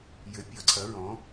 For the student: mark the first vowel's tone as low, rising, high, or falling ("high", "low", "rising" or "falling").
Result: rising